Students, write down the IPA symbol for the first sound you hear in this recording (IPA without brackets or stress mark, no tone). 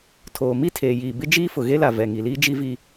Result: tʰ